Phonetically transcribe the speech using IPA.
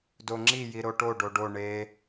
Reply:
doŋ͡ǁi jiɾoʈo ɖoɖo ɳe

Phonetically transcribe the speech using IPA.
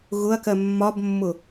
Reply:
ɣʊɐ̯kɜ mːɒbmːʊ

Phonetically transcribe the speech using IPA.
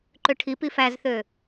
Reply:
ǃøʈʰipi fæzθø

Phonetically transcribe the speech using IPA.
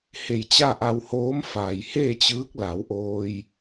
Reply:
he˧˩jt͡ɕa˥˨ʔa˧whoː˧˥m fa˩jheː˥˨t͡ɕɯː˧˥k̚la˩˧w ʔoː˧j

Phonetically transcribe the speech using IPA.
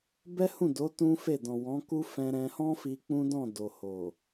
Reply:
bɛ˦hũ˦˨do˨˦ tũ˦fe˦˨ dɔ̃˨wɔ̃˨˦ku˦ fɛ̃˧ɾɛ̃˧hɔ̃˦fi˧ k͡pũ˦dɔ̃˦˨ do˨ho˨

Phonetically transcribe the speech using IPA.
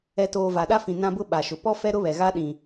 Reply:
ɛ˨toː˨ va˨ɗa˦fĩ˨ nã˦bʊ˦ ɓa˨ʃʊ˨ pɔ˦fɛ˦ɾʊ˦ βɛ˨ ɣa˦ɗĩ˨

